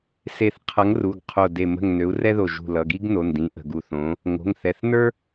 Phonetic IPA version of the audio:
se˧˩θqʰʌ˨˥ŋru˩˧˩ɡ qʰo˧˩de˧˩ mə̤˧˩ŋ nø˨˥u̯rɛ˥ðo˧˩ ʒṳ˧˩lʌ˩˧˩ɡi˥ɡ no˩˧˩ndĩ˨˥ ʔə̤˩˧˩ɡu˧˩θõ˨˥ | ŋo̤˩˧˩ŋθɛ˩˧˩θ nə˞˥

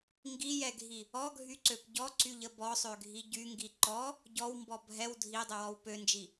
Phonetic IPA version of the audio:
ŋɡijɛɡʱi | ɔɡʱyǀøp ɟɔǀyʎə bɔsˤøɡʱi ɟyŋɡi ǃɔ | ɟɔwmbɔ bʱɛw dʱidˤəwɔw pønd͡ʒi

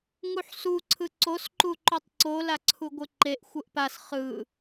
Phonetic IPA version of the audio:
ŋuħsu ǀʰɯǀos ǃuǃutˤǀo laǀʰuɡʷɯǃeʔ xʷɯʔpas χɯ

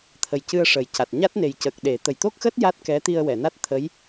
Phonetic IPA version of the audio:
t̪ʰə˨˩jcɨ˧ə̯ ʂə˨˩jca˨˩t̚ ɲa˦˥t̚ne˨˩j cə˨˩k̚ ɗe˨˩˦ t̪ə˨˩jt̪o˦˥k̚xəː˦˥t̚ ja˦˥t̚kɛ˧˥ t̪i˧ə̯wɛ˨˩˨na˦˥t̚ t̪ʰə˧˥j

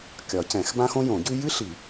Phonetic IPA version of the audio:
kʲɒ˨˩˦cɛ̃˨˩˦x bã˥xõ˥ jõ˨˩˦ɟʉ˥ jɨ˥ɬi˨˩˦

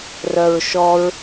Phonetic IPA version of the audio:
rœɹʃɔɹ

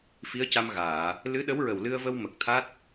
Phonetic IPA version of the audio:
fi˧˥ə̯ca˧mɣaː˨˩˨ | lɨ˧˥ɗə˧˥wɹə˨˩w lɨ˧ə̯və˧w mə˨˩k̚t̪ʰa˦˥t̚

